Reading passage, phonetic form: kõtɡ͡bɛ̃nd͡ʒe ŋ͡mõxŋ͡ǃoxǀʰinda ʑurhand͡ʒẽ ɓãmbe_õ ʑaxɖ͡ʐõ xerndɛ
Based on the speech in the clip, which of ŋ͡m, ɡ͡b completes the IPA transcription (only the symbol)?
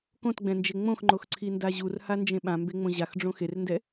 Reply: ŋ͡m